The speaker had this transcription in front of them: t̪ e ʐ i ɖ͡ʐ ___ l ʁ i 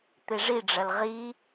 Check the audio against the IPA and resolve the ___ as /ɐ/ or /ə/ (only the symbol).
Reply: ɐ